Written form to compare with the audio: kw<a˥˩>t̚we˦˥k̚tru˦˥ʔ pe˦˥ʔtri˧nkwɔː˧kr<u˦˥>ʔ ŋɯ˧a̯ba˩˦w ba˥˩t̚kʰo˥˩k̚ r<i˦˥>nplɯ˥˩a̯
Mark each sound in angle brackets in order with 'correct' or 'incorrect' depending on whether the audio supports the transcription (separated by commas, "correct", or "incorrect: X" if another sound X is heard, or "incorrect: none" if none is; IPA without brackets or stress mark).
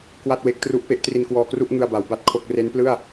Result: correct, incorrect: u˥˩, incorrect: e˦˥